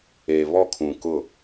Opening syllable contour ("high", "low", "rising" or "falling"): low